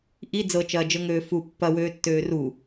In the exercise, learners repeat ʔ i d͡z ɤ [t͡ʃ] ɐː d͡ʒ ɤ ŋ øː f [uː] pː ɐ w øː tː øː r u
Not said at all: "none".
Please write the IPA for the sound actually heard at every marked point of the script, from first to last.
t͡ʃ, u

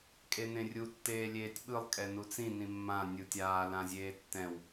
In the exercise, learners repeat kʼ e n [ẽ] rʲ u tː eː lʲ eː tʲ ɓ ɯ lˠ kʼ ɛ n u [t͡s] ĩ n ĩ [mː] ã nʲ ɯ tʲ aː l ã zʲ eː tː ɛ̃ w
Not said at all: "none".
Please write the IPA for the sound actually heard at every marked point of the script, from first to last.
ẽ, t͡s, mː

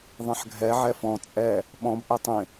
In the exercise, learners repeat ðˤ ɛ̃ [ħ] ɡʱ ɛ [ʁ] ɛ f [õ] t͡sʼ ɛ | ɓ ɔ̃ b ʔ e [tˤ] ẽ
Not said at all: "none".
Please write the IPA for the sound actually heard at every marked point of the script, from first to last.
ħ, ʕ, ɔ̃, tˤ

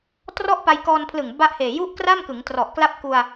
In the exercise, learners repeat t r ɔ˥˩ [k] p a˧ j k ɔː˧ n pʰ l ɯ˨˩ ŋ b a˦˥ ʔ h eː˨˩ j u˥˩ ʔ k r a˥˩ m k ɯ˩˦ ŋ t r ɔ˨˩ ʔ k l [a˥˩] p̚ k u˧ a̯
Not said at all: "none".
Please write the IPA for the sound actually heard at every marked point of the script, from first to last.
ʔ, a˥˩

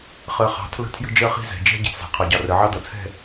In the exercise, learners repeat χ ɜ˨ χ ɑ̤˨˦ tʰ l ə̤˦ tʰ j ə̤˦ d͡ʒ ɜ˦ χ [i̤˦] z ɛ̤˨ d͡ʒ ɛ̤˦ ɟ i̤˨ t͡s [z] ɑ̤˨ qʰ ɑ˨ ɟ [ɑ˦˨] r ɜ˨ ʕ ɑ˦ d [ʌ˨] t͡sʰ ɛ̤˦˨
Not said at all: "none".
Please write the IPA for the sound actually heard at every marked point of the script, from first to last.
i̤˦, z, ɑ˨, ʌ˨

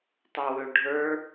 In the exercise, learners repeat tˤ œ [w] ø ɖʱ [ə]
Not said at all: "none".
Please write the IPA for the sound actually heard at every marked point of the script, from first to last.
w, ə˞

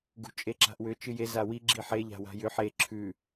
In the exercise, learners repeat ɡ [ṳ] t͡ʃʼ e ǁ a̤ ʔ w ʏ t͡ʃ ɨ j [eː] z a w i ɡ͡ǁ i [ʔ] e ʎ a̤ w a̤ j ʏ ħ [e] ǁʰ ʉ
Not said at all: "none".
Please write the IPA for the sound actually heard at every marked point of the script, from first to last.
ṳ, e, ħ, e

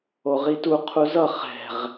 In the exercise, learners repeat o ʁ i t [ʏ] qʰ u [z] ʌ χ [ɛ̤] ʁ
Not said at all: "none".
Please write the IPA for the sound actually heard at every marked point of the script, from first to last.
u, z, ɛ̤

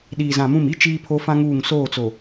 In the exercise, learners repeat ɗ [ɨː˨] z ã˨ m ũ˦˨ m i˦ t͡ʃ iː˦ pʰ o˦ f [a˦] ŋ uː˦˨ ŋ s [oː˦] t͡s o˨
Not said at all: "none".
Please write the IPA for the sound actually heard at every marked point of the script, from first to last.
iː˨, ã˦, oː˦˨

